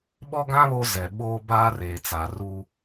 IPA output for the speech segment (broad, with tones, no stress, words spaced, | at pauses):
ɓɔ˦ɡã˦ βo˦zɛ˨ɓoː˦baː˦ reː˨t͡sa˨ ru˦